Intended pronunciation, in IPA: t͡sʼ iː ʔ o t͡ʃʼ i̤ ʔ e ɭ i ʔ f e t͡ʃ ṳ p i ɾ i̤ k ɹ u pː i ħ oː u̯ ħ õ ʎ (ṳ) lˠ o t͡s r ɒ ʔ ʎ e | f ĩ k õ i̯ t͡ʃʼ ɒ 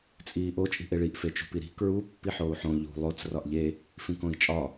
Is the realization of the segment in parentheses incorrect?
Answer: no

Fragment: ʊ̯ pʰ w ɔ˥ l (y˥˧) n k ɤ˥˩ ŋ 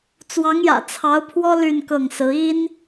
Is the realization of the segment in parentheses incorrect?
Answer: no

